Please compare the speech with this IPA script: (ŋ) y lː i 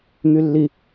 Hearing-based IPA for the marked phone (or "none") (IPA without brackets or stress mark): ŋ